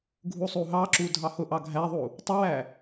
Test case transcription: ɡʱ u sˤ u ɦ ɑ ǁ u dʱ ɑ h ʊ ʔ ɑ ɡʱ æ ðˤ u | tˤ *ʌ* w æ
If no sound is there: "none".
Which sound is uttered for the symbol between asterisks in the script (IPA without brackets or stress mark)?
ʌ